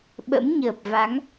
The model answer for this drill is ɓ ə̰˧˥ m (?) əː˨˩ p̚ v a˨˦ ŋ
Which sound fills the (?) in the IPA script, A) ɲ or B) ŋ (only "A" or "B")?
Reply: A